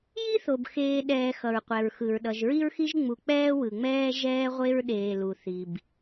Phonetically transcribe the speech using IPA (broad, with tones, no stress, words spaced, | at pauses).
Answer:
ji˥θo˩b xeː˨ ɗɛː˨xʌ˩ɹqʷɛ˩ɹxɯ˩ɹ ɗʌ˩ʒɹi˦ɹxi˦ʒ ŋ͡mu˨k͡pɛː˥wɯ˩ŋ͡mɛː˥ ʒɛː˦ʁʷe˦ɹɗeː˨lu˩ θi˩b